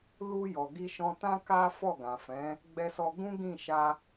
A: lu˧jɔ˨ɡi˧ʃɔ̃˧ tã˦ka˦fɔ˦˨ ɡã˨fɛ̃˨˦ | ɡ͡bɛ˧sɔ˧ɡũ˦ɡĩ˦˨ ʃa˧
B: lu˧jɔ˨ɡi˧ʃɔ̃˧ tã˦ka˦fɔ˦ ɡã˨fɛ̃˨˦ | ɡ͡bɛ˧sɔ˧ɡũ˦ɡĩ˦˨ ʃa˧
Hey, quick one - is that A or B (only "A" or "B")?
A